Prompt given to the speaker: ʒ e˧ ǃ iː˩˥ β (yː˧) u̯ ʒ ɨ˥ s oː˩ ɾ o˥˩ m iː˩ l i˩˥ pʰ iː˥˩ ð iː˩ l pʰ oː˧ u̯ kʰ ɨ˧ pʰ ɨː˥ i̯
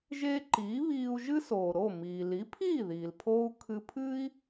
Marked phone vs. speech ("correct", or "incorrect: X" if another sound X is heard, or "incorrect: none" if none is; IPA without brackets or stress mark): incorrect: iː˧